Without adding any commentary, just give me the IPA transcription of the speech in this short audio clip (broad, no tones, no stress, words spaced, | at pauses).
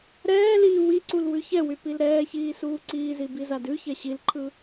ɾɛːliː wiǀul wʉçɛwy pilɾɛːçiː suːǀiːzi bizadʉçɛ ɕilǃʰɯ